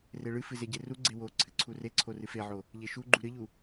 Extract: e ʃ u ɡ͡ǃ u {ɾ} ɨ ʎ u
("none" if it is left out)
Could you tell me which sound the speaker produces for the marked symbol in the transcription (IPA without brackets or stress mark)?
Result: ɾ